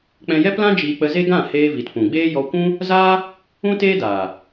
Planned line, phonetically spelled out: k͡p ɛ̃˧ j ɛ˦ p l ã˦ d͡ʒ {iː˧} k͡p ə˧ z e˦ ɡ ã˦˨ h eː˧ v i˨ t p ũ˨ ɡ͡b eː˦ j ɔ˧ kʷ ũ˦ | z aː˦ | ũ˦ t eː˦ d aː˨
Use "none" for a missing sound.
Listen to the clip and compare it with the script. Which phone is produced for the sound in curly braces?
iː˧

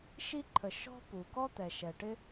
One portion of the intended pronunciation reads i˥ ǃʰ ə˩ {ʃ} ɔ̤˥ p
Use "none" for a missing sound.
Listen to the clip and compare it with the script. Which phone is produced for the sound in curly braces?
ʃ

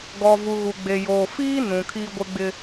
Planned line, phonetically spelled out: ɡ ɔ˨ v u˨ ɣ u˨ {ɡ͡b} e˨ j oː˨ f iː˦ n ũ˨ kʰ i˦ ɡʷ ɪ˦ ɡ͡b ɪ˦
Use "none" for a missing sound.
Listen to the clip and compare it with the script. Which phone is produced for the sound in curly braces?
ɡ͡b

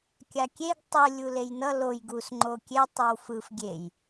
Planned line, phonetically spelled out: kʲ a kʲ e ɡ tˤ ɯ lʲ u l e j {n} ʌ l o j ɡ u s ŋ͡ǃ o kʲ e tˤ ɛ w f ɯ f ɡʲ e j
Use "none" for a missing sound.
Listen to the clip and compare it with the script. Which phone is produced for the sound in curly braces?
n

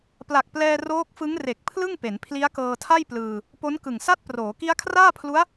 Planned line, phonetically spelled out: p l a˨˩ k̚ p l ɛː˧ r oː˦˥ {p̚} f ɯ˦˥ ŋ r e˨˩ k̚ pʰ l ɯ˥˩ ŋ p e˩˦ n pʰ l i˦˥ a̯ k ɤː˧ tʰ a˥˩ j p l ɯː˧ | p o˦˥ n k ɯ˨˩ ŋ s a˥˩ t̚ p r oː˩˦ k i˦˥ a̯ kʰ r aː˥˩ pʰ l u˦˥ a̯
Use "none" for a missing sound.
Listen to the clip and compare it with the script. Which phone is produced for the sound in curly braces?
k̚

